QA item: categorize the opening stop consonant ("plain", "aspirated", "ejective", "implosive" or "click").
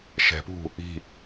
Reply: plain